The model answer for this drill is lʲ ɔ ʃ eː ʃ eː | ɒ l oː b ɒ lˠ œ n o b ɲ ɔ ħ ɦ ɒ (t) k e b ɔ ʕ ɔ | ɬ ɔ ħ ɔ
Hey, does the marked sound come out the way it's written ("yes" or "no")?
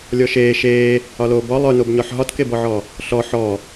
yes